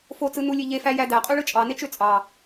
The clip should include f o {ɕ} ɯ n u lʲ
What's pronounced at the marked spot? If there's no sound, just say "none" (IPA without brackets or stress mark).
t͡s